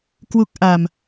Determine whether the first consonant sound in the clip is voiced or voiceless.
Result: voiceless